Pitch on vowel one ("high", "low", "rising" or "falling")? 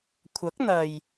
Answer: rising